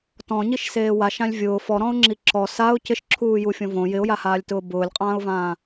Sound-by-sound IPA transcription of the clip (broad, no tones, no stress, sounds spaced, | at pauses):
t ɔ̃ ɲ i ʃ s eː w a ʃ ã lʲ vʲ ʊː f ɔ ɾ ɔ̃ ʊ̯ ŋ͡ǁ i ǁ ɔ s a ʊ̯ c ɪ ʃ ǁʰ uː j u fʲ õ v õ j ɪ ʊ̯ j a h aː lʲ t ʊː b ʊː lʲ qʼ ãː ʊ̯ v ãː